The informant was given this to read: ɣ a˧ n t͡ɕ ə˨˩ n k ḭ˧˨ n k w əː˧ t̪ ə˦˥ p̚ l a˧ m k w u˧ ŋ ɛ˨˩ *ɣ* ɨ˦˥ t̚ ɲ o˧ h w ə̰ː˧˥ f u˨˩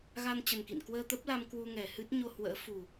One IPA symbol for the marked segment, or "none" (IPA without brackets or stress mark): h